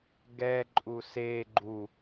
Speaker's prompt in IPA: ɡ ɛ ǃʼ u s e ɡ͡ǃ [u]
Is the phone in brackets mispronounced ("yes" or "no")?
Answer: no